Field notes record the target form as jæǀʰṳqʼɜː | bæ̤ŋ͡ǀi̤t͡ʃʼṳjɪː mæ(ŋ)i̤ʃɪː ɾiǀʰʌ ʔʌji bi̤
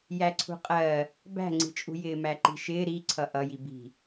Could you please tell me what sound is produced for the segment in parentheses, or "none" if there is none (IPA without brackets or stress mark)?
ǃ